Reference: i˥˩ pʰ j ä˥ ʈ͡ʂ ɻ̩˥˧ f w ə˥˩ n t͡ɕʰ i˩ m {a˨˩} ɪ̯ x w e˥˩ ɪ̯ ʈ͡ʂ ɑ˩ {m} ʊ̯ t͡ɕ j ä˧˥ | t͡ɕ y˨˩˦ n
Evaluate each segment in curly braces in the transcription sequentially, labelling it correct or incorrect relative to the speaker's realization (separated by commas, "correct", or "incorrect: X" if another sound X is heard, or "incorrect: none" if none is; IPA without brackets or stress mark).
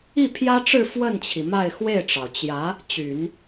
incorrect: a˥˧, incorrect: none